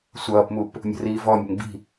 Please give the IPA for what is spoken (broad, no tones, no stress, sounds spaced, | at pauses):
sʷ ʌː p m u p | mʲ ə̤ r iː v ɔ mʲ ə̤ ŋ b i̤